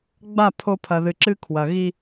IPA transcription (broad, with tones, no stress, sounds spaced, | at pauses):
ɡ͡b a˦˨ pʰ o˦ pʰ ɐ˨ ð ɨ˨ ǁ ɨ˦ kʰ w ɐ˨ ɣ i˦